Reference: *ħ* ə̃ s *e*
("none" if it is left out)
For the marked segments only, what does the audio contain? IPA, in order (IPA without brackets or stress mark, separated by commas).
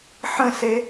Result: ħ, e